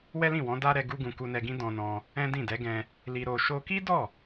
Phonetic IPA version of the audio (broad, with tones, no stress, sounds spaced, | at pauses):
w ɛ˦ l ĩ˦˨ w ɔ̃˨˦ d a˦ ɾ ɛ˧ ɡ u˦ ɡ ũ˧ k u˧ n ɛ˧ ɡ ĩ˦ d ɔ̃˧ n ɔ̃˧ | ɛ̃˦ d ĩ˦˨ d ɛ˨˦ ɡ ɛ̃˧ | l i˧ ɾ o˧ ʃ o˧ k i˦ d ɔ˦˨